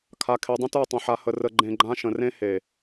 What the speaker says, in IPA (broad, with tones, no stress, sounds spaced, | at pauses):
kʰ a˨ kʰ e˨ dˤ ə̃˦ t ə˞˦˨ tˤ ə̃˨ ħ a˨ h ə˨ r ə˧ ɡ͡ǃ ẽ˧ ɡ͡ǃ ã˦ ʃ ə̃˨ r ẽ˦ h e˨